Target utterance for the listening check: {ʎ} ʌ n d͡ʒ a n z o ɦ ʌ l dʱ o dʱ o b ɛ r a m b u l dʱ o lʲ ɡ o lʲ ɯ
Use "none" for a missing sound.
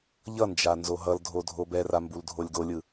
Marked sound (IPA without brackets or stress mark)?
ʎ